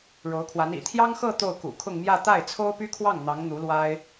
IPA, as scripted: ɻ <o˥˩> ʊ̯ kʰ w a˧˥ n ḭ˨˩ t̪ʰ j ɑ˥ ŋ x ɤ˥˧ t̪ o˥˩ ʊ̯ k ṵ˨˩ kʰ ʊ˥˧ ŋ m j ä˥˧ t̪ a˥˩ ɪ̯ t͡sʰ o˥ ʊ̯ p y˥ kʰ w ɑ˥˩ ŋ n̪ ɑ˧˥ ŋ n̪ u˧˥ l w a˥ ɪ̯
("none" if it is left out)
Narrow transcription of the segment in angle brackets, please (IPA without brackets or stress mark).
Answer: o˧˥